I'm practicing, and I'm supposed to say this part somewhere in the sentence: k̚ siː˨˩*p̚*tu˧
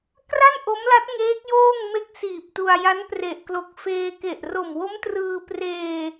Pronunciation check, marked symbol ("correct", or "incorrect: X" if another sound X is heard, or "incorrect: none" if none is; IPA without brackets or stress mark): correct